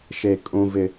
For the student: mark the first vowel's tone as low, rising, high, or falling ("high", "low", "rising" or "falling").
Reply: low